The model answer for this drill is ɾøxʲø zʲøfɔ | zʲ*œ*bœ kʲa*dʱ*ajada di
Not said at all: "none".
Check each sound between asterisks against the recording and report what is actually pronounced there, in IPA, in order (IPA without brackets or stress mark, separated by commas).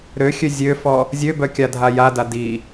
ø, dʱ